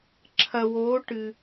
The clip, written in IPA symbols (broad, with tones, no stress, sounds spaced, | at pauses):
ǁʰ ɐ˨ w oː˨˦ ʈ ɨ˨